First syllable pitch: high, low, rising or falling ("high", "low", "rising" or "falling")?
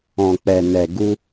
low